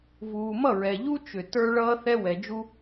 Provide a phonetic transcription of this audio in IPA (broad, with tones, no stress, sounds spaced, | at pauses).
v uː˨ m ʌ˦˨ ɹ ɛ˨ ʎ u˦ t͡ʃ ʏ˨ t ə˞˦ ɭ ʌː˦ θ ɛ˦ w ɛ˨ d͡ʒ u˦